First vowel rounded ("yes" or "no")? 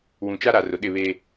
yes